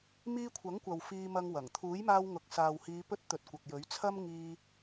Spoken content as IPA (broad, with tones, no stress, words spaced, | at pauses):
miː˧kʷʰɐ˨˥ŋkʷɐ˨w fiː˧mɐ˧ŋwɐ˨˩ŋ t̪ʰuː˨˥jmaː˧wŋʊ˨˥k̚ saː˨whiː˨˧pɵ˧t̚t̪ɵ˨t̚ kʷɐ˨k̚jɵ˨˥ɥt͡sʰɐ˥m ŋiː˧